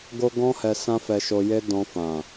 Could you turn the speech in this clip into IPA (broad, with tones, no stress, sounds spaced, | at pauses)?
ɡ o˦ ɡ ɔ̃˦ h ɛ˧ s ã˦ f ɛ˧ ʃ o˧ j e˦ d ɔ̃˧ f ã˨